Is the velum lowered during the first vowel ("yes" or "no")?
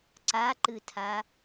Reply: no